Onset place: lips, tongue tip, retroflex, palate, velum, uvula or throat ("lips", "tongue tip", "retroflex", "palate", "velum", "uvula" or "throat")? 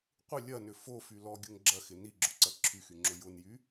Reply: uvula